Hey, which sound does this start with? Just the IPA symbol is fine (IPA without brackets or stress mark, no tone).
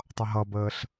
tˤ